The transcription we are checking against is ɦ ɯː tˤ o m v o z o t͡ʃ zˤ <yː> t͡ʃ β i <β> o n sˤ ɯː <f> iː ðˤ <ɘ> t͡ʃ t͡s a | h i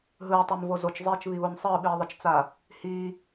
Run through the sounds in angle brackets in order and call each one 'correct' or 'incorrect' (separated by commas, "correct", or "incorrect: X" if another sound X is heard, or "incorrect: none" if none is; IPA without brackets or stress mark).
incorrect: iː, correct, incorrect: ɓ, correct